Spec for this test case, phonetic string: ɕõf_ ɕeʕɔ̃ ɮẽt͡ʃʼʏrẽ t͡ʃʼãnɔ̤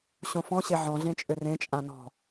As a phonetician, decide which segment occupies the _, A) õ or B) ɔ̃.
B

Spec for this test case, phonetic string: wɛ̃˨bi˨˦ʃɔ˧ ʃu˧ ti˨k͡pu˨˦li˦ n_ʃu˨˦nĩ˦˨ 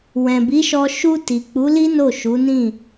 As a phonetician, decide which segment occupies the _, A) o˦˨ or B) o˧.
A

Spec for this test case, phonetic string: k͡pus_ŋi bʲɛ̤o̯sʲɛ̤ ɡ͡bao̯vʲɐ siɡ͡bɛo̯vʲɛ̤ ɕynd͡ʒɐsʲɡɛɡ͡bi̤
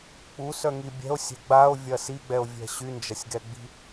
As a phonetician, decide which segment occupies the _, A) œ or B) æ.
A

